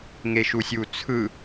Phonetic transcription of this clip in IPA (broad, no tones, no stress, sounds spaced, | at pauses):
ŋ e ʃ u sʲ u t͡sʰ ɯ